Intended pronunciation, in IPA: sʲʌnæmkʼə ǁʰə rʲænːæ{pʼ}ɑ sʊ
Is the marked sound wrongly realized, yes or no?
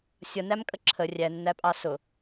no